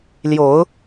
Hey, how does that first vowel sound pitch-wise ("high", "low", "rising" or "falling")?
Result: rising